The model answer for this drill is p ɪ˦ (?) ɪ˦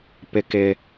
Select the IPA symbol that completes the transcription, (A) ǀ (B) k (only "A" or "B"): B